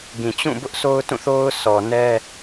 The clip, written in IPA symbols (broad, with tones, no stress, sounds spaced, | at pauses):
ɡ ĩ˨ t͡ɕ ũ˦˨ b ʊ˦ ʔ sʰ o˦ ʊ̯ t ũ˦˨ θ o˦ ʊ̯ s ɔ˨ n ɛ˦